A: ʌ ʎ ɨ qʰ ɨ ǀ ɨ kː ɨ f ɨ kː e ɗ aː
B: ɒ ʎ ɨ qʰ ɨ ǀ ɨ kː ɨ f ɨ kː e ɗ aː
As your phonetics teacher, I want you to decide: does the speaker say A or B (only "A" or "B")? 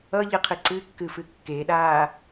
A